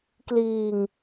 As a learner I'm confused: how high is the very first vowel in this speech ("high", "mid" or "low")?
high